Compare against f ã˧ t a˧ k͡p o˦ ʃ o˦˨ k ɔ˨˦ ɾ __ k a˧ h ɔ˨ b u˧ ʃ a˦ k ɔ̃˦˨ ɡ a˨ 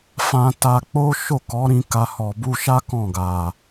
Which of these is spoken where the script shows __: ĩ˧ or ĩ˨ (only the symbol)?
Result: ĩ˧